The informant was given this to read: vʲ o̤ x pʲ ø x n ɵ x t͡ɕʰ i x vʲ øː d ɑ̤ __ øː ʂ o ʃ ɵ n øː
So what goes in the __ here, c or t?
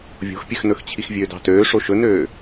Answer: t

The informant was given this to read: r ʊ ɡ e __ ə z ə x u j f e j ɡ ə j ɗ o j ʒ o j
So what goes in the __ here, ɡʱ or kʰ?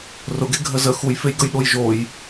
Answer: ɡʱ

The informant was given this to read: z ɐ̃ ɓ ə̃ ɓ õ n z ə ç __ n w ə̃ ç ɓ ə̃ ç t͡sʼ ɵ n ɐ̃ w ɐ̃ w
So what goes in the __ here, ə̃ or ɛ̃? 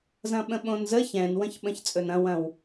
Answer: ɛ̃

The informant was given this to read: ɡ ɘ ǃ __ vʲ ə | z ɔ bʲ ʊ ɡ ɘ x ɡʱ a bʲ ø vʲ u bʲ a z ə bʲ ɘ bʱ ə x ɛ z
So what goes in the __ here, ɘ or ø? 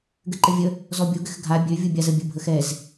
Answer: ɘ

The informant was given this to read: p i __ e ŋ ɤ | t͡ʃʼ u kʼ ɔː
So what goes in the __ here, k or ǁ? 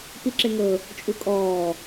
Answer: ǁ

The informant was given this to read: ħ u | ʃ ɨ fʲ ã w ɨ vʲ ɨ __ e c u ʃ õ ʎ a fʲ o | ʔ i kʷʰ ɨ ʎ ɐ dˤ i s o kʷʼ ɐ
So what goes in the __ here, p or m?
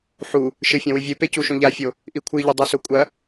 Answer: p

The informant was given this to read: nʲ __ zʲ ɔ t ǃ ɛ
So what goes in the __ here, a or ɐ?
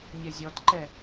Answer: ɐ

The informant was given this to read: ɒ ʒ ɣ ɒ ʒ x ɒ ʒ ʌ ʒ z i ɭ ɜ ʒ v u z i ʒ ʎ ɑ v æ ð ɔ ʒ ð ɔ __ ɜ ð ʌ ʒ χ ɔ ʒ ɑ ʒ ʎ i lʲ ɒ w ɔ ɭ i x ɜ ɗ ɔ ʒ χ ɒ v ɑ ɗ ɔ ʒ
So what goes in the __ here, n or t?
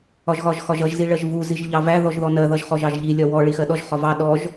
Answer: n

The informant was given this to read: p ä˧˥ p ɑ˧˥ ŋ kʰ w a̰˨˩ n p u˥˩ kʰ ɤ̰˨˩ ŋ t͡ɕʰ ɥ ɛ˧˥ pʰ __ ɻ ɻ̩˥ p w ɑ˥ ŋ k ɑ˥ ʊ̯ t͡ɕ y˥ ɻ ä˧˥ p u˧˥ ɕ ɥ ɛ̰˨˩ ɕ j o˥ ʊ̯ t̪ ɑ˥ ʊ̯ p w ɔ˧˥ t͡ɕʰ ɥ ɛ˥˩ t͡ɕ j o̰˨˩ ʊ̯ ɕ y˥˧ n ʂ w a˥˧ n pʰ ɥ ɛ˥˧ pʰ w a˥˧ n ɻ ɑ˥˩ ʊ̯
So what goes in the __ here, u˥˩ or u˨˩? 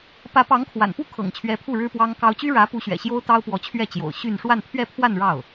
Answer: u˥˩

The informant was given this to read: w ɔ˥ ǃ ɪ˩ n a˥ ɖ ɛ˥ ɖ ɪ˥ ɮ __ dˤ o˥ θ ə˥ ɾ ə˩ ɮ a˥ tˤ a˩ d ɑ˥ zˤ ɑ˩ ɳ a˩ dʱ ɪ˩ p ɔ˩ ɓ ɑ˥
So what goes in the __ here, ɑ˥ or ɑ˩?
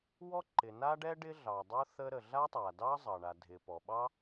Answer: ɑ˩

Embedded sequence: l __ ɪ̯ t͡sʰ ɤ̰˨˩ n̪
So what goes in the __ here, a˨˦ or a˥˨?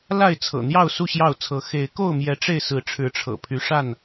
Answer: a˥˨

